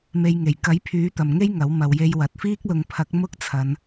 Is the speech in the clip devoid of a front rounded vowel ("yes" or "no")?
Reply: no